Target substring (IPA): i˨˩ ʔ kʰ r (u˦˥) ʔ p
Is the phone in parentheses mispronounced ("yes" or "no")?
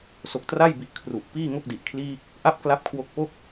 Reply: yes